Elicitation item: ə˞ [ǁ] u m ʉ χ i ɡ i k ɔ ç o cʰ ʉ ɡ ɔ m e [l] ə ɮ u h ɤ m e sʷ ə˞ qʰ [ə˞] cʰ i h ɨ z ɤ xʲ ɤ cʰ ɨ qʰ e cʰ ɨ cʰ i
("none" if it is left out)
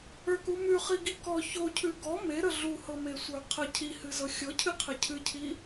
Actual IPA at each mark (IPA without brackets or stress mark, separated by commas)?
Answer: k, ɾ, ə